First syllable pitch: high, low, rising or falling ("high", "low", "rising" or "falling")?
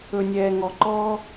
low